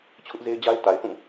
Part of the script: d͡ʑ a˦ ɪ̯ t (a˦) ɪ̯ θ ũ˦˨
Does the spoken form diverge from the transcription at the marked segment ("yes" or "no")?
yes